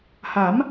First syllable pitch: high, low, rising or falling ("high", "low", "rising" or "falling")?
rising